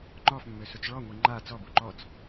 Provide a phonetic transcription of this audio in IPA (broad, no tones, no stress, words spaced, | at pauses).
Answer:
ŋ͡ǃɔfmːøsut͡s ɭɔŋʷi ŋ͡ǃa t͡sɔbu ǃɔt͡s